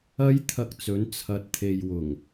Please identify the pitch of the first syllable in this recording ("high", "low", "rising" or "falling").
high